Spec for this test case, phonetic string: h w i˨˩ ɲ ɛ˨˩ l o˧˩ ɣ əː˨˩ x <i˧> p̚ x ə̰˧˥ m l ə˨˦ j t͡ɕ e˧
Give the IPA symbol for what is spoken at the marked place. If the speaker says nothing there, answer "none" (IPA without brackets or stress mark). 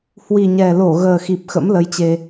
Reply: i˨˩